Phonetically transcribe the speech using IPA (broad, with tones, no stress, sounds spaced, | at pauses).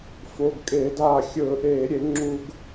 f o˩˧˩ ɡ kʼ eː˧˩˧ d aː˧˩ xʲ ɵː˧˩˧ ʔ eː˧˩˧ ɾʲ e˧˩˧ ŋ͡ǁ u˧ ɡ